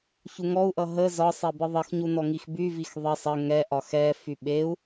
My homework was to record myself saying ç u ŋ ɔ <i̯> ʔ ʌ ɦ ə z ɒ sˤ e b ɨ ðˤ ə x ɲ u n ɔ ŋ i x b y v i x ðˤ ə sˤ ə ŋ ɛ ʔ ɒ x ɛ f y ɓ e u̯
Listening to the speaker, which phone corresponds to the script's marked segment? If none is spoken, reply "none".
u̯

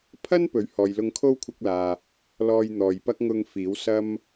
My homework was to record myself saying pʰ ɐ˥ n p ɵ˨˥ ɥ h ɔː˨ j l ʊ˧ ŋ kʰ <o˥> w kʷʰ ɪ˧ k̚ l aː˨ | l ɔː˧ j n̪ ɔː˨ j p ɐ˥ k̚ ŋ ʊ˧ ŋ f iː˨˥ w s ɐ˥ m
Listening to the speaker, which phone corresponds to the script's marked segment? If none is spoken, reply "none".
o˥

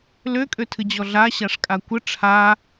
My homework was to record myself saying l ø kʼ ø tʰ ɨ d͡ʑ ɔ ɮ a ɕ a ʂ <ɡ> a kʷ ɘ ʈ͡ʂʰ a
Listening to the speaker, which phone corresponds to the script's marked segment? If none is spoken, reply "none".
kʼ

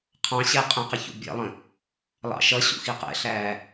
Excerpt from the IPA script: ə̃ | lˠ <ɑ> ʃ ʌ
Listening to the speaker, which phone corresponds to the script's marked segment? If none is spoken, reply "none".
ɑ̰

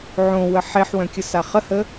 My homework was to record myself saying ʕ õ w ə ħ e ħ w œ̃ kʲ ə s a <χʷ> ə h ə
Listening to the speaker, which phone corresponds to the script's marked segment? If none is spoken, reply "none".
χ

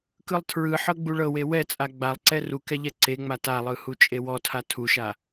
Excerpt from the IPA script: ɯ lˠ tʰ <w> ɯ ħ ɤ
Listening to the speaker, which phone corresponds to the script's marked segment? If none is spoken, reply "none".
ɹ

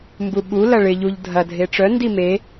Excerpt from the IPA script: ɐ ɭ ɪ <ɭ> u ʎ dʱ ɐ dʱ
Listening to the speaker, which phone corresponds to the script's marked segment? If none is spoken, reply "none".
ʎ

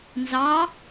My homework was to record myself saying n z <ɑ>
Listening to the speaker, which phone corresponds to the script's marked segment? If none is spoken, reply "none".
ɑ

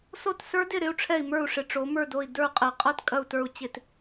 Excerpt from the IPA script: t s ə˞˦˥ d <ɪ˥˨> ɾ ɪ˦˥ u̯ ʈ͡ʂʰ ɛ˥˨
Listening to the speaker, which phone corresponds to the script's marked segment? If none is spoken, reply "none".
ɪ˥˨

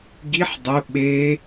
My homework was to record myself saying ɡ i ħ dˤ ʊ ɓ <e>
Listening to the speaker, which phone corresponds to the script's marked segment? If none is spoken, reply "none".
e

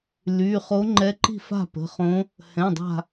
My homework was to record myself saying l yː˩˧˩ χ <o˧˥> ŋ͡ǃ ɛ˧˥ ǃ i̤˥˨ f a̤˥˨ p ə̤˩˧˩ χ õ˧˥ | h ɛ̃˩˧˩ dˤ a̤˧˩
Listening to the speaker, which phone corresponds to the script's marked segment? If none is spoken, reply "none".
o˧˥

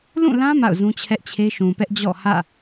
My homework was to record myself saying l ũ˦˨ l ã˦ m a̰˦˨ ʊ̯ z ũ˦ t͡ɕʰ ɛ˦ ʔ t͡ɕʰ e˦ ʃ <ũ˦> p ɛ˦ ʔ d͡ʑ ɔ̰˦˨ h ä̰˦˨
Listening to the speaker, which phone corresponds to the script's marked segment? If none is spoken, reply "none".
ũ˨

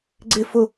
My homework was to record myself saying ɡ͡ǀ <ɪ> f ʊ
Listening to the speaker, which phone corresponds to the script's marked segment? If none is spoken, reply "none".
ɪ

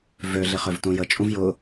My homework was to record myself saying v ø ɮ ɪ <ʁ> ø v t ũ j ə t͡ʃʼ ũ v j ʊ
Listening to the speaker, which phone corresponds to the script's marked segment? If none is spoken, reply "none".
χ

